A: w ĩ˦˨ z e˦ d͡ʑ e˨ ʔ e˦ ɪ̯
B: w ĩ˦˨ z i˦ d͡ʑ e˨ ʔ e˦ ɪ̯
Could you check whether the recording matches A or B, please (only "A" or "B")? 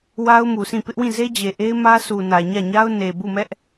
A